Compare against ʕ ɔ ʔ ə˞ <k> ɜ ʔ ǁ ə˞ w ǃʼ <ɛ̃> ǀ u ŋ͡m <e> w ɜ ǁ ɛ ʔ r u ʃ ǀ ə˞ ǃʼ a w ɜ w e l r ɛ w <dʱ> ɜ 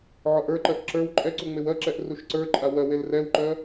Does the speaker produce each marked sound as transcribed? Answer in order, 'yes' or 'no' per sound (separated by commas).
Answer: no, no, yes, no